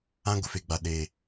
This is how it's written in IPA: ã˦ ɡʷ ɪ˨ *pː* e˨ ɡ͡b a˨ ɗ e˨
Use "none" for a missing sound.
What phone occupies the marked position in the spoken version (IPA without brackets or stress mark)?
f